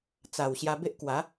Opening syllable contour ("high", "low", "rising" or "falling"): low